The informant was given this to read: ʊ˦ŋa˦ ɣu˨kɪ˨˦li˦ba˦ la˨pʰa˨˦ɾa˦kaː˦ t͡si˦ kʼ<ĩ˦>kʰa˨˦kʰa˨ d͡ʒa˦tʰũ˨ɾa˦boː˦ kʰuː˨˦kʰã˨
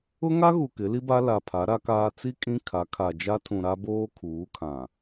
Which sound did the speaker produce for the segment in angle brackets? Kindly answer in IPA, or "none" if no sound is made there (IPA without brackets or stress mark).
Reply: ĩ˦